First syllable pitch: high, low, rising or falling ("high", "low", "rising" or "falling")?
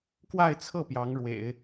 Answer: falling